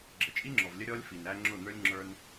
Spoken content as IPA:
ɡ͡ǁ ə˨ t͡ʃʼ i˦ ŋ͡ǁ ɔ˨ v lʲ ə˦ ɾʲ ɔ˦ lʲ f i˨ n æ˦ ŋ͡ǁ ʊ˦˨ n̪ ə˞˦ lʲ ŋ͡ǁ ə˞˦ n

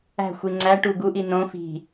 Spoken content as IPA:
æ̤ xʷ i ŋ͡ǀ æ ʈ u ɡ u ʔ i n õ f i̤

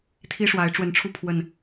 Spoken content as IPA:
t̪ʰ i˦ ʂ w a˨˦ ɪ̯ ʈ͡ʂ w ə˨˦ n ʈ͡ʂʰ u˧ pʰ w ə˨˩ n

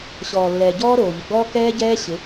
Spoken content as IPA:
ɕ ɔː˨ lː ɛː˨ ɟ ɔː˦ ɾ oː˨ ʎ ɪ˨ ɡ͡b ɔː˦ k ɛː˦ ɟ ɛː˦ ɕ ɪ˨˦

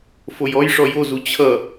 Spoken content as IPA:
f o j ɔ j ʂ ɔ j o z u t͡ɕʰ ʌ

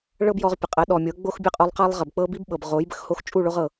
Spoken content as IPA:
ɭ ɤ˦ b j ɔ˧ ʁ pʲ ə˨ qʼ ə˨˦ ɗ ɔ˨ mʲ ɤ˨˦ ɡ͡b o˦ x bʲ ə˦ qʼ o˧ lˠ q a˦ lˠ ʁ ə˨ b k͡p ɤ˦ b i˦ b ɓ ɤ˨ b ʁ o˨˦ j b ə˨ x h o˧ x t͡ʃʼ u˦˨ ɭ o˧ ʁ ɤ˨

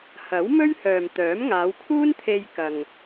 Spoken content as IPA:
h ɐ˨˥ w m ɵ˥ ɥ h œː˨ m t̪ œː˨˥ m ŋ aː˨˧ w kʰ uː˥ n t̪ʰ e˧ j k ɐ˨ ŋ

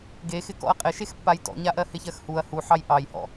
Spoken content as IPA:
ɡ e x ɪ k ɔ̰ ɐ̯ qʼ ɪ ʃ e x pː a j t ɔ̰ ɲ a ʔ ɜ h ɪ ç ɜ x h u ɐ̯ h u ħ ɑ j ʔ ɑ j h ɔ̰

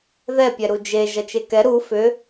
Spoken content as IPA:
ð ɛ pʲ ɛ ɾ u d͡ʒ e ʒ ɐ t͡ʃ e k ɛ ɾ u f ʏ

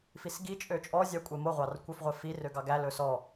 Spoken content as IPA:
f i s ɡ i t͡ʃʼ ø t͡ʃʼ ɔ zʲ ɑ kʷʼ e m o ʁʷ ɑ r kʷ œ f ʁʷ ɛ f i r ø ɡ ɑ ɡ æ l ɵ s ɔ

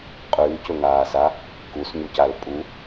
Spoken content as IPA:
qʼ ʉː c ɵ ŋ aː s a | k u s ɲ u c a l pʼ u

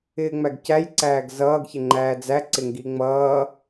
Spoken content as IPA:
ɪː ŋ͡m æ ɡ c æ j ǀ æː ɡ z ʌː ɡ ç ɪ ŋ͡ǃ æː d͡z æ ǀ ɪ ŋ ɡ i ŋ͡m ʌː

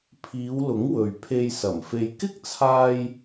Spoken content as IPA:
pʰ iː˨˧ w l ʊ˨˥ ŋ w ɵ˨ ɥ pʰ e˧ j s ɐ˨˩ m f e˧ j k ɪ˥ k̚ t͡sʰ aː˧ j

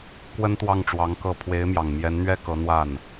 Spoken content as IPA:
k w ə˥ n t̪ w ɑ˥˩ ŋ ʈ͡ʂ w ɑ˧˥ ŋ k ɤ˥˩ pʰ w e˧˥ ɪ̯ m j ɑ˨˩ ŋ m j ɛ˧˥ n n̪ ɥ ɛ˥ k ɤ˧˥ n̪ w a˥˩ n

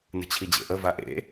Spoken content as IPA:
n ə̤ t͡ɕʰ i d͡ʑ ḛ ʔ ə v a ʔ ḛ

